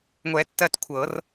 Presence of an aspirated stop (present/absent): present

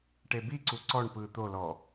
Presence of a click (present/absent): present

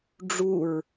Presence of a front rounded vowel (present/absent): absent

